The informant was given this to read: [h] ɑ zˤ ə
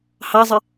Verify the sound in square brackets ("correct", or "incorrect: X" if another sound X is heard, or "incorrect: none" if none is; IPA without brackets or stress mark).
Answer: correct